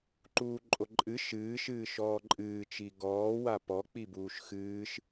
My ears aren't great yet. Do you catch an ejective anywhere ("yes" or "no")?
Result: yes